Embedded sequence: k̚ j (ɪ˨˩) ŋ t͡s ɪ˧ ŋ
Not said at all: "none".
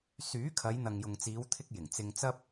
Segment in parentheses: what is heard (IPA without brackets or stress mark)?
ɪ˨˩